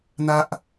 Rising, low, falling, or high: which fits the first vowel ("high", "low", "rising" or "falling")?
high